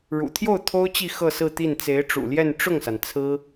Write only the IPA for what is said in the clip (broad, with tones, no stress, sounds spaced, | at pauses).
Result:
ɻ ṵ˨˩ t̪ʰ j o˥˩ ʊ̯ t̪ʰ o˥ ʊ̯ t͡ɕ i˥˧ x ɤ˥˧ s ɹ̩˥˧ t̪ i˥˩ n t͡s e˧˥ ɪ̯ ʈ͡ʂ ṵ˨˩ l j ɛ˥˧ n ʈ͡ʂ ʊ˥˩ ŋ s a˩ n t͡sʰ ɹ̩˥